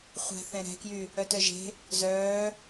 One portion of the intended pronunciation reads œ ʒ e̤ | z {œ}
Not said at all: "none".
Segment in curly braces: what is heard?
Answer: œː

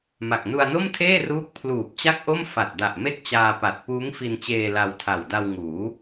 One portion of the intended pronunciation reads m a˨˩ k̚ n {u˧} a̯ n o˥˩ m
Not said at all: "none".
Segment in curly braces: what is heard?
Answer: u˧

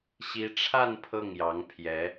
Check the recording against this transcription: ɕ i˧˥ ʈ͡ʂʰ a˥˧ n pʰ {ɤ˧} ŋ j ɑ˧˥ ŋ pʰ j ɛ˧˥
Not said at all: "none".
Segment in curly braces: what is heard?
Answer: ɤ˥˩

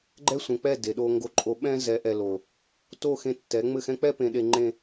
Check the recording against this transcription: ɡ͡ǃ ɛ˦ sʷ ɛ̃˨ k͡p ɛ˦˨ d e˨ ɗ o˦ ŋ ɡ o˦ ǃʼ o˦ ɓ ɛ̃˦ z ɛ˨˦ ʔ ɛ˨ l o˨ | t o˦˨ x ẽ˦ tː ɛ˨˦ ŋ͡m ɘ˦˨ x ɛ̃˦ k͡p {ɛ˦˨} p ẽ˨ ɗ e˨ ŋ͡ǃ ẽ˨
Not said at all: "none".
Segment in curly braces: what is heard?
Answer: ɛ˦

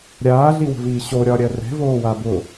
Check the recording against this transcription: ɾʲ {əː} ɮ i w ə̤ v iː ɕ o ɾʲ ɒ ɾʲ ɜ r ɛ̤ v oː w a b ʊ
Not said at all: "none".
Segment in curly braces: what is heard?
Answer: aː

